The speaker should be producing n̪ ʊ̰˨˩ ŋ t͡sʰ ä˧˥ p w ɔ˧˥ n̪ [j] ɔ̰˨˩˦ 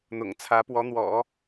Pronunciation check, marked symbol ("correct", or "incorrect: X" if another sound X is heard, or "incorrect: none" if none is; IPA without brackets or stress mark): incorrect: w